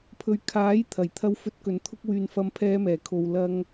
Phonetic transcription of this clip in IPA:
pʰɵ˧ɥ kʰaː˨˥j t̪ʰɐ˨˩j t̪ʰɐ˥wfɵ˥t̚ kɵ˨˧nt̪ʰʊ˥k̚wyː˧n fɐ˥mpʰɛː˥ mɛː˨˩kʰo˧w lɐ˥ŋ

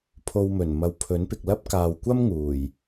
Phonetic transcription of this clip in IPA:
pʰo˧wmɵ˨˩nmɐ˨w pʰɵ˨˥npɪ˨k̚lɐ˥p̚ kaː˨wkʷɐ˥m ŋuː˨˩j

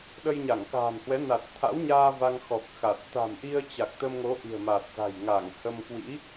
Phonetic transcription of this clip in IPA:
ɗə˧jɲa˧˩ŋka̤ː˨˩nhwɛ˨˦ na˨˩t̚t̪ʰa̰˧˥wɲaː˧ va˧ŋxɔ˨˩k̚ xa˨˩t̚ t̪a̤˨˩mʔi˧ə̯ t͡ɕa˨˩k̚t̪ə˧mŋo˨˦ ʔi̤˨˩ə̯ma˨˩t̚za̤˨˩j ŋa˧˩ŋhə˧m kwḭ˧˥

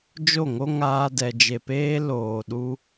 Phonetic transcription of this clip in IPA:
d͡ʒo˦˨ŋo˦ŋaː˧ dɛ˨d͡ʒe˨peː˧ loː˨ ɗu˧

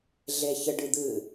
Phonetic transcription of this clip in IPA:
ɮeçɘ ɖɨd̪ɨ

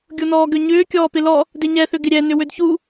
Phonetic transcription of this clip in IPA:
ɡʲonɔːɡøɲʏː kʲɔːpɪlɔ | dɪɲɛθʏ ɡɪɾʲɛ nʏwødçu

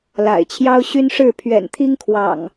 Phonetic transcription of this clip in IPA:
la̰˨˩ɪ̯t͡ɕʰjɑ˦ʊ̯ ɕy˦nʂɻ̩˥˨ pʰɥɛ̰˨˩nt̪ʰi˦ŋkʰwɑ̰˨˩ŋ

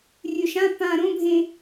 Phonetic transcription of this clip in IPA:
rʲɵʃã pã ɾõbʱẽ

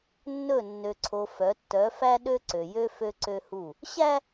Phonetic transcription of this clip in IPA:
nːɵ˦˨ nːø˨ǀʰo˨ fœ˨˦ tːœ˨˦fæ˦ ɗø˦ǀø˨jø˦ fø˦ǀø˦hu˦˨ | ɕæ˦

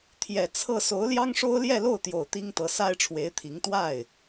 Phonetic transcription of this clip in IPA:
t̪ʰjɛ˨˩ t͡sʰɤ˥˩ so˧˥ʊ̯ljɑ˥ŋʂo˥ʊ̯ ljɛ˥˧lo˥˩ʊ̯t̪jo˨˩ʊ̯ t̪i˥ŋt̪ɤ˧˥ sa˥ɪ̯ʈ͡ʂʰwe˧˥ɪ̯t̪ʰi˧˥ŋ t̪wa˥˩ɪ̯

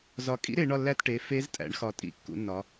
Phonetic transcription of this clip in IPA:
zɒ˨˩kʼḭ˧˥ɾe˩˧ ɳɒ˦˨lːæ˦˨tʈe˩˧ fe˧˥ztʼæ̰˩˧ɳxɒ˨˩ tʼḭ˧˥kːṵ˩˧nːɒ˩˧

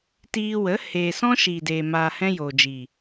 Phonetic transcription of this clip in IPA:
tiː˧wə˨˦ heː˨ sɔ̃˧ ʃiː˨de˨ maː˨ hɛ̃˧joː˨d͡ʒiː˨

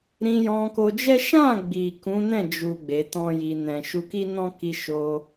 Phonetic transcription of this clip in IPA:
ɾĩ˧jɔ̃˧ko˧d͡ʒɛ˦ ʃã˦˨ɡ͡bi˨ kũ˨˦nɛ̃˦˨d͡ʒu˨ ɡ͡be˨˦tɔ̃˦ji˧ nɛ̃˨ ʃu˧ki˦nɔ̃˦ki˧ ʃo˧

